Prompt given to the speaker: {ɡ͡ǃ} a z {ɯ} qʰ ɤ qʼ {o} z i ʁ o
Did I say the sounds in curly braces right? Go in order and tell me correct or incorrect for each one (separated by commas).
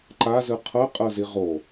incorrect, correct, incorrect